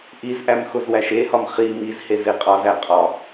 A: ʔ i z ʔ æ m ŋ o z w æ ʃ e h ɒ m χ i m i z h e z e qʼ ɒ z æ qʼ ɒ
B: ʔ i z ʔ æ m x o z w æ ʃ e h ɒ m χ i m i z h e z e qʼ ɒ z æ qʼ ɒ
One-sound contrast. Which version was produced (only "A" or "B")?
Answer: B